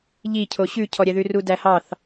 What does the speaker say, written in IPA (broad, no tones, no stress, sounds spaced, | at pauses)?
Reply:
ʎ i cʰ o ɕ ʉ cʰ ɔ ɾʲ ɛ ð ʉ r u d æ h ɑ θ